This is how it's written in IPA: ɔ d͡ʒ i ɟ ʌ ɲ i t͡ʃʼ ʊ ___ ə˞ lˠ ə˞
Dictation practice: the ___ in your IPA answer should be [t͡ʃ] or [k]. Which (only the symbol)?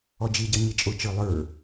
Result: t͡ʃ